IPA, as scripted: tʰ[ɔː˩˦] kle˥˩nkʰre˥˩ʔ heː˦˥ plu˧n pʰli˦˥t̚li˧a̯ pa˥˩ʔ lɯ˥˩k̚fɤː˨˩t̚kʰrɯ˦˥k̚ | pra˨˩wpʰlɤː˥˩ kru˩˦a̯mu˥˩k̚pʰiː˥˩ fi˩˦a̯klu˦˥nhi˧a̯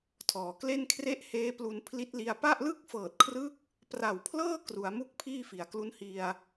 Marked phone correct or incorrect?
correct